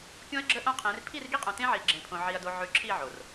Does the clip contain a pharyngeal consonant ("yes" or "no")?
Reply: yes